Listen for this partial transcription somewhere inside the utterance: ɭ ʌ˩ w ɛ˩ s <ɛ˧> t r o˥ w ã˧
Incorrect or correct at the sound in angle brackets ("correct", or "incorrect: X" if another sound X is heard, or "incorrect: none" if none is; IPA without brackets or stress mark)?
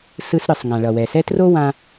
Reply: incorrect: ɛ˥